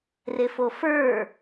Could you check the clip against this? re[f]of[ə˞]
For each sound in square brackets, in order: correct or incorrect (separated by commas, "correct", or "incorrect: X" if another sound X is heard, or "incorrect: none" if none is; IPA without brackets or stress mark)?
correct, correct